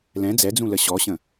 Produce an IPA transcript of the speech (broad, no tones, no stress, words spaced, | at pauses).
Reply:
lɛ̃ d͡zɛd͡zũlə ɕɔɕə̃